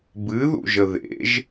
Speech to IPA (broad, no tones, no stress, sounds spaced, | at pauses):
b ɨ ð ṵ ʒ ə ð ḛ ʒ